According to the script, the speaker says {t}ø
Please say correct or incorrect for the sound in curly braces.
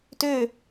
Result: correct